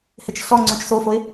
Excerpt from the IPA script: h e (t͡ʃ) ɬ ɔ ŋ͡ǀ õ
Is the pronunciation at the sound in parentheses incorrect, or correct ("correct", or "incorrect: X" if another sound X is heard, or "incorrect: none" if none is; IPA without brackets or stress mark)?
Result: correct